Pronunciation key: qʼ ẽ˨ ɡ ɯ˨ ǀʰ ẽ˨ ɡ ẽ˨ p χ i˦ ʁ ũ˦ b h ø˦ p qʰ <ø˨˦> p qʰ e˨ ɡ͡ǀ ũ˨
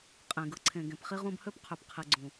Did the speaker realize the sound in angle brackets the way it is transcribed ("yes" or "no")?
no